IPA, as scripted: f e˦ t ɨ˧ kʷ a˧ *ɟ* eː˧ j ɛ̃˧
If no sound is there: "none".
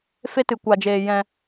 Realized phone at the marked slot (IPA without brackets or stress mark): d͡ʒ